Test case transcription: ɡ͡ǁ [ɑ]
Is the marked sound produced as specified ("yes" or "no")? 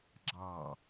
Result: yes